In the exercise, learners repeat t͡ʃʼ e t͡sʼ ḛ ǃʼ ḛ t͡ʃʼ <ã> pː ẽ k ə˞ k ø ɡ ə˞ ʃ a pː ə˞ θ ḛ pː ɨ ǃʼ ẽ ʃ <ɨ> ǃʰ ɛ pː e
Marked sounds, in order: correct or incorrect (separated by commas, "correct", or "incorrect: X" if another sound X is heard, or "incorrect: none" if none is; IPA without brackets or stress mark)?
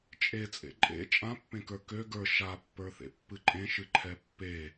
correct, correct